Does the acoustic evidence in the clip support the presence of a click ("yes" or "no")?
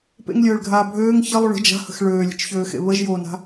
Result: no